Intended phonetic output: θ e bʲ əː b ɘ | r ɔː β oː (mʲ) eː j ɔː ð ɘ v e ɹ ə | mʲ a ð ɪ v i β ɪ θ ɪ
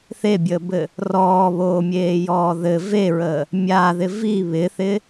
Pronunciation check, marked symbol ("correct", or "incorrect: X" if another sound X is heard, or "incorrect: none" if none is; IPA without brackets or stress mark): correct